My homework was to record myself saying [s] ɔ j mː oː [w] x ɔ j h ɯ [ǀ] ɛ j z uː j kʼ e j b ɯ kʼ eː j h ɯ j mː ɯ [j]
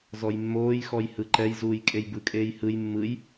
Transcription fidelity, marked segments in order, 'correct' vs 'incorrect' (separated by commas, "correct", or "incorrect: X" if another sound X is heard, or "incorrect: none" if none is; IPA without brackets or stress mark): incorrect: z, incorrect: j, incorrect: ǃ, correct